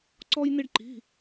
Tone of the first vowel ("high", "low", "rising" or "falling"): high